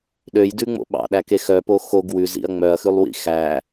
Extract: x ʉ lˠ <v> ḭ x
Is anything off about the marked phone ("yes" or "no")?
yes